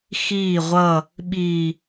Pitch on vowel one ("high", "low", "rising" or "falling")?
falling